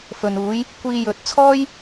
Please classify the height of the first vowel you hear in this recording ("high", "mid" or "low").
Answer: mid